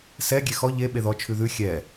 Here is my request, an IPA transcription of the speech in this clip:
s ɛ ɡʲ e x ɔ ʎ e ɓ e ð ɔ t͡ʃʰ ʉ ð ʉ xʲ ɛ

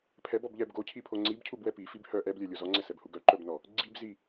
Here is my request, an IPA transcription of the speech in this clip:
pʰ ɛ b ɔ b ʎ ɛ b ɡ o cʰ i pʰ o ŋ͡ǀ i b cʰ u b w ɛ p i f i b h œ ʔ ɛ b lʲ œ lʲ o z ɔ ŋ͡ǀ ɛ s ɛ b h u ɡ œ ǃ œ b n ɔ | ɡ͡ǀ i b z i

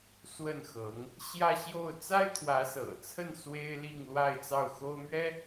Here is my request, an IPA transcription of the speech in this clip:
s w ə˥˩ n x ɤ˧˥ ŋ | ɕ j ä˥˧ ɕ j o˥˩ ʊ̯ t͡s a˥ ɪ̯ t̪ʰ w ä˧˥ s ɤ̰˨˩ t͡sʰ ə˥˩ n s w e˥ ɪ̯ l i˥˧ ŋ l w a˥˧ ɪ̯ t͡s ɑ˥˩ ʊ̯ x o˥ ʊ̯ m ɥ ɛ˥

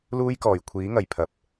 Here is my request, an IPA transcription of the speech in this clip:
l uː˥ j k ɔː˨˩ j kʷʰ iː˨˥ ŋ ɐ˨˩ j pʰ ɐ˨˥ p̚

